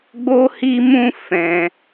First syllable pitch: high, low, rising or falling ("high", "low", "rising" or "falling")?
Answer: high